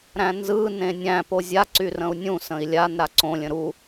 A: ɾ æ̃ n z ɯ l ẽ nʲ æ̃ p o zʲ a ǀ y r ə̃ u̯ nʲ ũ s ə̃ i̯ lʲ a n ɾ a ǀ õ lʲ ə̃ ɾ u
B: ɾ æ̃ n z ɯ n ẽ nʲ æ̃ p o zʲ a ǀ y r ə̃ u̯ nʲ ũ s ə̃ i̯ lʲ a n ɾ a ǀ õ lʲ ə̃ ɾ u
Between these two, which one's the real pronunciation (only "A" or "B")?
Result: B